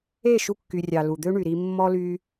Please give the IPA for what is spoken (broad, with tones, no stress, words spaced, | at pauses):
e˦˨ ʃu˧kːy˨rʲɑ˨ lu˨d̪ø˦ɳy˨ɾi˧ mːɔ˦ly˦